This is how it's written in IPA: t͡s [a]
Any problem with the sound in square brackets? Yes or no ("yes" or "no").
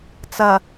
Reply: yes